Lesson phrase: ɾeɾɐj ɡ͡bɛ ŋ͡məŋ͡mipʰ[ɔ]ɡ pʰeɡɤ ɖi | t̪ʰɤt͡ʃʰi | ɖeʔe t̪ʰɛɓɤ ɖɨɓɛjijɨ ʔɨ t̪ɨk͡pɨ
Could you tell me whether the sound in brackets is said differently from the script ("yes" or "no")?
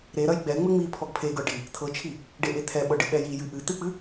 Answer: no